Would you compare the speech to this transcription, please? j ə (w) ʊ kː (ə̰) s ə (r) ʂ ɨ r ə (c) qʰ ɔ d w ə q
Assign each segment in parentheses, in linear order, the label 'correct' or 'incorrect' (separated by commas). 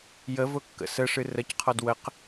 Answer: incorrect, correct, incorrect, correct